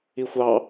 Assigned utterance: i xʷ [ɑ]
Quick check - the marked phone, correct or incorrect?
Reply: correct